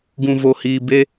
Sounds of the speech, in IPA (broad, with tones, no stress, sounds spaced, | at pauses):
ɡ ũ˨ v o˨ h iː˨ b e˦